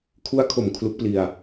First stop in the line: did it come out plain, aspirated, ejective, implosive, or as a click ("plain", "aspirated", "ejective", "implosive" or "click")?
aspirated